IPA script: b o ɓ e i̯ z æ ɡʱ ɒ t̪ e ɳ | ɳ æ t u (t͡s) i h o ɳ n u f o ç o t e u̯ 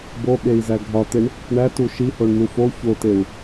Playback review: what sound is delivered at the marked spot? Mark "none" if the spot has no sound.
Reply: ʃ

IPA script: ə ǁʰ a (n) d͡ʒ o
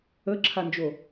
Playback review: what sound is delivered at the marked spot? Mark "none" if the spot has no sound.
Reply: n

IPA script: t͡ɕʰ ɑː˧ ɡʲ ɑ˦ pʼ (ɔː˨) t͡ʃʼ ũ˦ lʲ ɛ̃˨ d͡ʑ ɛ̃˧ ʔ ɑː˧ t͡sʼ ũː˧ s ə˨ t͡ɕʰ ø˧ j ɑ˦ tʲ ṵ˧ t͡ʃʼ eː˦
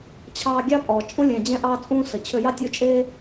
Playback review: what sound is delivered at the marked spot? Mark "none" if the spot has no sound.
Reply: ɔː˨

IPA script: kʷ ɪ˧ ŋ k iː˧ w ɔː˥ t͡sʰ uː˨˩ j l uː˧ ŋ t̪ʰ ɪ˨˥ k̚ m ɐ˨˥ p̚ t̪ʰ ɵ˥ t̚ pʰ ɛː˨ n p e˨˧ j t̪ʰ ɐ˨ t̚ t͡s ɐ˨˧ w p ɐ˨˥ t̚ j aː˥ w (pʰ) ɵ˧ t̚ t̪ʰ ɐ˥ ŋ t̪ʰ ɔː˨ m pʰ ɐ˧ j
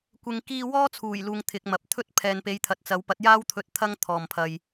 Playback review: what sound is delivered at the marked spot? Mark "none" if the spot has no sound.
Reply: t̪ʰ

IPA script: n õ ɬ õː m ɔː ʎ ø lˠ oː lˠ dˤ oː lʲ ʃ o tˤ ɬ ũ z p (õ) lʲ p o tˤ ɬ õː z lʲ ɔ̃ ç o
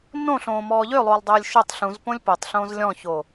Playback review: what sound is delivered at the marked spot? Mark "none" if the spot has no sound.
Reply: õ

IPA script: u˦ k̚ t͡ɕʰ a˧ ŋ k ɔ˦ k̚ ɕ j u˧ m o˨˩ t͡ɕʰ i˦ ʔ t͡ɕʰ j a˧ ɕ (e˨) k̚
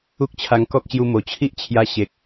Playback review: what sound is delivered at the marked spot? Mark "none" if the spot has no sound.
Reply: e˨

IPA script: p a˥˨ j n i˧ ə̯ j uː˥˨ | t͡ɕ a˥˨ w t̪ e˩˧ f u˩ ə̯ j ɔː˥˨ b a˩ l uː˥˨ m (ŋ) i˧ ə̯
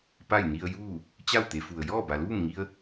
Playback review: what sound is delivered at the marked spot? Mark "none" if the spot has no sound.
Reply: ŋ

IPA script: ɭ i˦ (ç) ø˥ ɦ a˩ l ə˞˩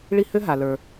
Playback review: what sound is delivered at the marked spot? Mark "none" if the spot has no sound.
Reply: h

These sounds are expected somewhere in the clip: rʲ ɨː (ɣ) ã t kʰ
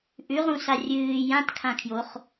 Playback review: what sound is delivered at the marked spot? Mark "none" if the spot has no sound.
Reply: j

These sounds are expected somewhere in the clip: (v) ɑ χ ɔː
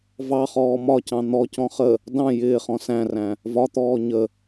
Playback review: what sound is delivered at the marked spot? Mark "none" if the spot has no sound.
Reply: v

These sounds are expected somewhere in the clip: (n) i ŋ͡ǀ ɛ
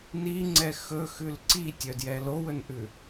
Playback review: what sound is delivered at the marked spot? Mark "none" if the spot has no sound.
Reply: n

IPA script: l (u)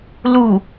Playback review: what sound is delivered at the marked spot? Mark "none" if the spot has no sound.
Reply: u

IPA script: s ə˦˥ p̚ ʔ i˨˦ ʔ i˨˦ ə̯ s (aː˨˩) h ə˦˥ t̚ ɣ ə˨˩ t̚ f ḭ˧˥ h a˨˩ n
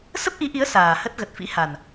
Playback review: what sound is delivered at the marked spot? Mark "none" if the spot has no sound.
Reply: aː˨˩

